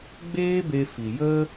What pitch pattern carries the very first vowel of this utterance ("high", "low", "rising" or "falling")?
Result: high